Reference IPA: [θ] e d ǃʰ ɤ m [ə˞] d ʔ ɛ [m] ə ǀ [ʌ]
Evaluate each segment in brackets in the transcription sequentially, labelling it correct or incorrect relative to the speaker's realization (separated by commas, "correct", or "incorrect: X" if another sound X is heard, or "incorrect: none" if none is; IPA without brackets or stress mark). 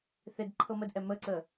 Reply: correct, incorrect: ə, correct, incorrect: ə